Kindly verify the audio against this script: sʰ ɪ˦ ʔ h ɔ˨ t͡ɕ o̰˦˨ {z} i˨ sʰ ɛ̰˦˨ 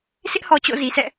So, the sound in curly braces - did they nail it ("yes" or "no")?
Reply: yes